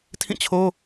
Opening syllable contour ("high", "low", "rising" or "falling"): falling